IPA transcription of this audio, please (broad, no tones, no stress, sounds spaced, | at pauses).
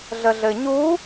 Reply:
ɮ ə ɮ ɘ ɲ u